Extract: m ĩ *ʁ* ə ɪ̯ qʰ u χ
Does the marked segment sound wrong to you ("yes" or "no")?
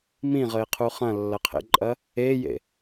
no